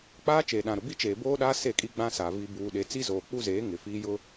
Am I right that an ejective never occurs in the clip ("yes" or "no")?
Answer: no